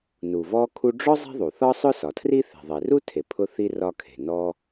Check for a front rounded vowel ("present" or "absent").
absent